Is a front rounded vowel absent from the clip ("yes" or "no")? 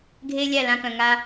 no